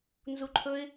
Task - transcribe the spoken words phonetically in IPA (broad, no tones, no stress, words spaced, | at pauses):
nzuǃʰɵɪ̯